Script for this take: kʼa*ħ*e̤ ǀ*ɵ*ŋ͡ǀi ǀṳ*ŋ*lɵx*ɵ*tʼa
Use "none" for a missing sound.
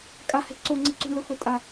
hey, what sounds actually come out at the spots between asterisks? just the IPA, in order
h, o, ɳ, ɵ

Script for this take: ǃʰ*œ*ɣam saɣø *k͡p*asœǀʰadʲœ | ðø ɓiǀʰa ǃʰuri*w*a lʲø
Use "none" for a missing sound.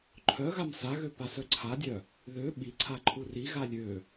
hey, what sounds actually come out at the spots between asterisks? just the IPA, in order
œ, p, ɣ

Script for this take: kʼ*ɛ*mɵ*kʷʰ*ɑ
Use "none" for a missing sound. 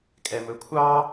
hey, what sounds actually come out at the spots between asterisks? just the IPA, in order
ɛ, kʷʰ

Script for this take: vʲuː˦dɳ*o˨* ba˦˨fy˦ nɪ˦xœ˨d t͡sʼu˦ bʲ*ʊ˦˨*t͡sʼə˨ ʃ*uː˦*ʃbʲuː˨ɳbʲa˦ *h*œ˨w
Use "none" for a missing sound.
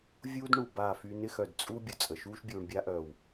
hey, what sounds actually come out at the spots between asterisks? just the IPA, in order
u˨, ʊ˨, uː˦, ʔ

